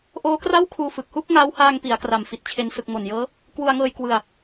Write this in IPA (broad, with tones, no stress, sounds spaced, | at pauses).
ʔ oː˦˥ k r a˥˩ w kʰ uː˧ f ɯ˨˩ k̚ h uː˥˩ k̚ ŋ aː˦˥ w h aː˧ ŋ p i˩˦ a̯ k r a˨˩ m f i˨˩ t̚ t͡ɕʰ e˧ n s ɯ˨˩ k̚ ŋ o˨˩ n j ɤː˦˥ | k w u˧ a̯ ŋ ɤː˧ j k w ɯ˧ a̯